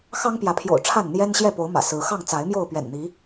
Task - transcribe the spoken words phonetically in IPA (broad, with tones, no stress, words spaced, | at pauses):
xɑ˦ŋpjä˨˦pʰjo̰˨˩ʊ̯ ʈ͡ʂʰa˥˨nn̪jɛ˦nɕjɛ˥˨ po˨˦ʊ̯mä̰˨˩ sɹ̩˨˦ xɑ˥˨ŋ t͡sa˨˦ɪ̯mjo˥˨ʊ̯ pɥɛ̰˨˩nn̪i˨˦